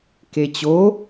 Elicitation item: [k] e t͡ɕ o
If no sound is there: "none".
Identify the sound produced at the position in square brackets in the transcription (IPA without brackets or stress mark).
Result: k